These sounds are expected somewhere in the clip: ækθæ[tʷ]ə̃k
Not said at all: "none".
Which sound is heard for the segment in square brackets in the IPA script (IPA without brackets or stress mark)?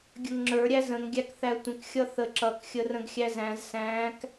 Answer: tʷ